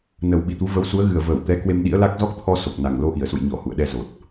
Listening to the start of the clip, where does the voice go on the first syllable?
low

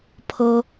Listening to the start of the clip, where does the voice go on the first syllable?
high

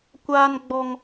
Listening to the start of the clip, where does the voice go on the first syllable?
high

